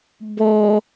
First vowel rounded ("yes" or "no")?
yes